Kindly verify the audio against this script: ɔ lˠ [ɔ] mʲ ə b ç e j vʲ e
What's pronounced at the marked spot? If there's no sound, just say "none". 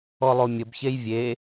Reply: o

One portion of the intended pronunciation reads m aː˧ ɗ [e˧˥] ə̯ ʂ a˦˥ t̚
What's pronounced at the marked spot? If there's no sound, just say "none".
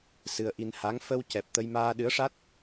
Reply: ɨ˧˥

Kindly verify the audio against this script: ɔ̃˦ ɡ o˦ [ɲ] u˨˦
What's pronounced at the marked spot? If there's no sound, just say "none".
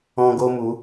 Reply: m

